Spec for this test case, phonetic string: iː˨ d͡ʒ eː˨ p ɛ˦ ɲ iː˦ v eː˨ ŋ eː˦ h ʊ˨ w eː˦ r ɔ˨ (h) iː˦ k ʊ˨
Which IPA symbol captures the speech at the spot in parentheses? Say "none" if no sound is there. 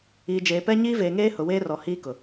h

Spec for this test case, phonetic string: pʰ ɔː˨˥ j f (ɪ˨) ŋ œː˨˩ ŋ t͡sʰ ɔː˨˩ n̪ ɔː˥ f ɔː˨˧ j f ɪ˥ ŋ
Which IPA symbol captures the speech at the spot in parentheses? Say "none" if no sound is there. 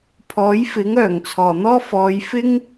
ɪ˨˥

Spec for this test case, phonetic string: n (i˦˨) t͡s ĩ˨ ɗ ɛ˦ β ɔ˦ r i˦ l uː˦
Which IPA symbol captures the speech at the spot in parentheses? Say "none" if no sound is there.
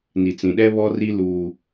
i˨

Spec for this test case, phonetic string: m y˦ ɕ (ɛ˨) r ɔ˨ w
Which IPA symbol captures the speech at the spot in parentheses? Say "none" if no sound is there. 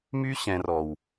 ɛ̃˨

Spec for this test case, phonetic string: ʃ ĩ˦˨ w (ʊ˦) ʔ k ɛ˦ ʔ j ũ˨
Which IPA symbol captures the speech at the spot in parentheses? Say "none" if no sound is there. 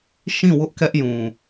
ʊ˦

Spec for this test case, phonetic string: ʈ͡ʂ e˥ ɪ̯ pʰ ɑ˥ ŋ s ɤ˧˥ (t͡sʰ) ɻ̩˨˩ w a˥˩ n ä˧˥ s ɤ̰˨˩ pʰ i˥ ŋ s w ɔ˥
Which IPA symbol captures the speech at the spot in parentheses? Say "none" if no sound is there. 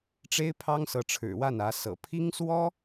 ʈ͡ʂʰ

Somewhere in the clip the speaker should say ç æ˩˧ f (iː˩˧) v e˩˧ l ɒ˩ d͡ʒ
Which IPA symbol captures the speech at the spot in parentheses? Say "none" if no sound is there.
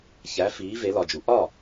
iː˩˧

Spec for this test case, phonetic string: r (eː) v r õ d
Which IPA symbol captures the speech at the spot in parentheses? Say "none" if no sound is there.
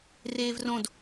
eː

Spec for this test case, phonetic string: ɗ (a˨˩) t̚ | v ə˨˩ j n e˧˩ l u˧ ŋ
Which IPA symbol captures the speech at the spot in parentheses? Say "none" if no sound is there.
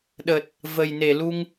ə˨˩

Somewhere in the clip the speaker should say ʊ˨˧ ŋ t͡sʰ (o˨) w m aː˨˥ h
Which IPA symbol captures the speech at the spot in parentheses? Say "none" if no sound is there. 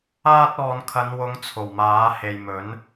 o˨˩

